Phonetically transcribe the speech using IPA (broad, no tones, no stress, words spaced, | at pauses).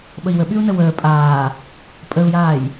ɓəi̯wəɓyu̯ nəwəː pʼaː | pʼəu̯jaːj